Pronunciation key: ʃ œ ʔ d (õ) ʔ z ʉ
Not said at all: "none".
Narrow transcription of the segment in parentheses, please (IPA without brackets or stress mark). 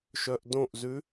õ